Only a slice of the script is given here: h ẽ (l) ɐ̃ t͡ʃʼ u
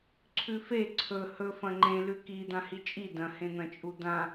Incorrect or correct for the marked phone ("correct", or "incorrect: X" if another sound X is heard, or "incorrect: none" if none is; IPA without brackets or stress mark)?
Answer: incorrect: n̪